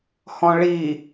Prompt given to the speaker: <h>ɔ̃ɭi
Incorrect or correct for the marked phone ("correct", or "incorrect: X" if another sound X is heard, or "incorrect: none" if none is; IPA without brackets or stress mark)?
correct